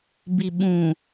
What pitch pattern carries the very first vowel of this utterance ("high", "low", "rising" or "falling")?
low